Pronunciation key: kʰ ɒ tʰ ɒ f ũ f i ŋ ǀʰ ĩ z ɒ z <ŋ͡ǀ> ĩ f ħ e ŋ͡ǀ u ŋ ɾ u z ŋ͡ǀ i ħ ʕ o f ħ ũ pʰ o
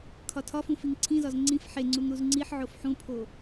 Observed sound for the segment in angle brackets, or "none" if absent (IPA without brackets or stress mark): ŋ͡ǀ